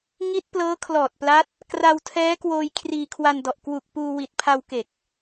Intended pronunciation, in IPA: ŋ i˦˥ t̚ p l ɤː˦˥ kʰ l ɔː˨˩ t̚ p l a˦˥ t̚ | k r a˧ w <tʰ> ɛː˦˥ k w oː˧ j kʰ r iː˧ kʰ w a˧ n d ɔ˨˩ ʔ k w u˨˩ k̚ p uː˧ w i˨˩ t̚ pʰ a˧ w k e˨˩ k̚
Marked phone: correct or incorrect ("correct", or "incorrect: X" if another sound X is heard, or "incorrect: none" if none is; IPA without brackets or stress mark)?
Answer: correct